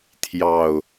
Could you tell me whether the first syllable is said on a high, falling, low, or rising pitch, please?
low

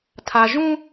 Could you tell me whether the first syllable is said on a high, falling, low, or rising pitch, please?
low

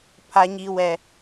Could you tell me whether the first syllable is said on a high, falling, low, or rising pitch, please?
high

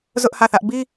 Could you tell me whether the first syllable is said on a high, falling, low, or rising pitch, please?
high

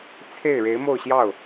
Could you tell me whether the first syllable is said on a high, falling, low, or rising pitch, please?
falling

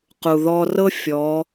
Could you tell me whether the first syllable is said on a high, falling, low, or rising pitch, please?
low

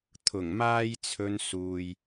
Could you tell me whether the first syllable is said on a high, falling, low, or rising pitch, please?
low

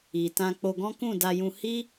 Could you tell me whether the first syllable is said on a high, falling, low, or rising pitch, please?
low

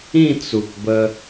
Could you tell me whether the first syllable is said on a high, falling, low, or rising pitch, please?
falling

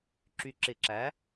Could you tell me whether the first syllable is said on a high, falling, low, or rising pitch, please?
low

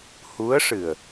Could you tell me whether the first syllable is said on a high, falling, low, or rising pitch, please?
rising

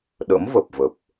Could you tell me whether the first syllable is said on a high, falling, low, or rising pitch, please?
rising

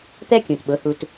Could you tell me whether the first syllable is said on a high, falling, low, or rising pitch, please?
high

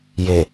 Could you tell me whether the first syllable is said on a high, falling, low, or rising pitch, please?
low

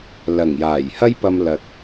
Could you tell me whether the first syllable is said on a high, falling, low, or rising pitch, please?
low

